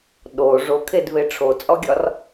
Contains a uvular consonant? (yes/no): no